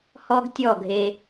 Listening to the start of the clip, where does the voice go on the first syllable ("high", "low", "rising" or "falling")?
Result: high